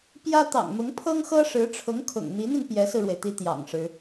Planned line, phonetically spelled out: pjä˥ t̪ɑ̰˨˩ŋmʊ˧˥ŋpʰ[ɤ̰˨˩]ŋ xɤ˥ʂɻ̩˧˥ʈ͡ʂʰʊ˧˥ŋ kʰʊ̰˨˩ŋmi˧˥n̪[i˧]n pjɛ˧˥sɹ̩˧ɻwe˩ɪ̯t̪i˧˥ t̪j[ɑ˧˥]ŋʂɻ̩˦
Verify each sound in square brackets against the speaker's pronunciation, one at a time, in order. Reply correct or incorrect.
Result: incorrect, correct, incorrect

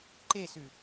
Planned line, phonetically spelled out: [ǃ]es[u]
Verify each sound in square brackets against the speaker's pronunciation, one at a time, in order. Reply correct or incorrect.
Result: correct, incorrect

